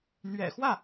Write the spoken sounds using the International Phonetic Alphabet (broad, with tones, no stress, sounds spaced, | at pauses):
n̪ ɥ ɛ̰˨˩ x w ä˥˩